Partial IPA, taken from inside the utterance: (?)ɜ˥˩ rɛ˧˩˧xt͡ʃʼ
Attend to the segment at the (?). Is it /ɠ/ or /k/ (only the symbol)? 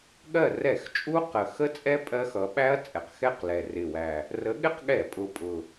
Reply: ɠ